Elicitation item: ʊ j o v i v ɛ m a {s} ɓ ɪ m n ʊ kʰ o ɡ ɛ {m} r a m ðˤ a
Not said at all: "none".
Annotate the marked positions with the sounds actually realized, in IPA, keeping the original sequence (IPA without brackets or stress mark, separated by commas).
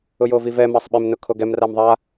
sˤ, m